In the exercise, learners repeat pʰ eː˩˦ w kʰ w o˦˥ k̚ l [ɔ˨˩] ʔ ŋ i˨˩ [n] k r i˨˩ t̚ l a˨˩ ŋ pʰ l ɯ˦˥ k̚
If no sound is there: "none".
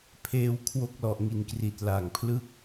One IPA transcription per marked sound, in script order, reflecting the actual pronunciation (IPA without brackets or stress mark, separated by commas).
ɔ˨˩, n